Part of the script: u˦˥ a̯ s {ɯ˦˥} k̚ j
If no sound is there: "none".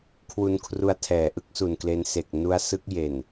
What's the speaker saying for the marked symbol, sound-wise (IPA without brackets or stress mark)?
ɯ˦˥